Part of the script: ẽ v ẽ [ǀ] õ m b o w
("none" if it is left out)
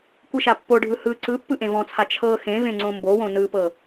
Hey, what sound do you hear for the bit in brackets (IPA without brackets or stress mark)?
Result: ŋ͡ǀ